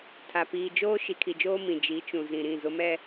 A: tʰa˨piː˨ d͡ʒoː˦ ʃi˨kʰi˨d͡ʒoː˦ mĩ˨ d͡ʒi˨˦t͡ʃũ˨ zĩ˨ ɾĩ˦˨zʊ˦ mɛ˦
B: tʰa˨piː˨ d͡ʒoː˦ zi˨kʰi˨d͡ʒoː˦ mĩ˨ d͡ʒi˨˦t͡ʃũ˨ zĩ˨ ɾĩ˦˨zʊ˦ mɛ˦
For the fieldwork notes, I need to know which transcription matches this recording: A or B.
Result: A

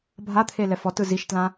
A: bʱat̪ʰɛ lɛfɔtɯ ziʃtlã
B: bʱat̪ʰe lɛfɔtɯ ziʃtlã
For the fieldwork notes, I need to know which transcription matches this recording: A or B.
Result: B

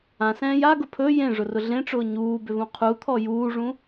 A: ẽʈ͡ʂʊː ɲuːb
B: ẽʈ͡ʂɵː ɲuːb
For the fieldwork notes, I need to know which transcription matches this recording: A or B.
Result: A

